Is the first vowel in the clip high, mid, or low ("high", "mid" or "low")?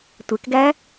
mid